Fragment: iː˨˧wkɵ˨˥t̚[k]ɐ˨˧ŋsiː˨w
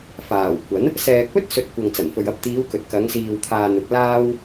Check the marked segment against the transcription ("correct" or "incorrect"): correct